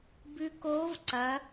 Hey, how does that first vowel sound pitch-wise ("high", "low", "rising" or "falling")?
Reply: rising